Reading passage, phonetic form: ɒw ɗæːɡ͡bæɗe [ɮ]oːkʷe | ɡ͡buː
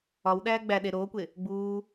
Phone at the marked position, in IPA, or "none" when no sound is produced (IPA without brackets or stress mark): ɾ